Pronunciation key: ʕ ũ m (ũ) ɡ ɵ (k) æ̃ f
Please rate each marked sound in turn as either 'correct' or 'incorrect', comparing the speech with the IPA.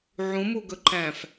incorrect, incorrect

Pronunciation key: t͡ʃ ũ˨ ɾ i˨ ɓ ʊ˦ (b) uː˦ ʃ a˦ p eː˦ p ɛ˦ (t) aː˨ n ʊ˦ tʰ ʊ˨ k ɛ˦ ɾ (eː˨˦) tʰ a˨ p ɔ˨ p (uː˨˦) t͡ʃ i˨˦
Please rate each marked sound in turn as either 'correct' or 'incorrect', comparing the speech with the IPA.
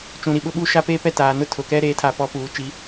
incorrect, correct, correct, correct

